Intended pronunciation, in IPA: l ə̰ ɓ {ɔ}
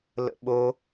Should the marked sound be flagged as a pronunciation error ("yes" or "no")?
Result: yes